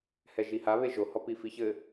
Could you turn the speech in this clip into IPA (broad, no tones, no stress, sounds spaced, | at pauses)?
h ɛ ʒ i h a β e ʒ o h ɔ p i f i ç ɘ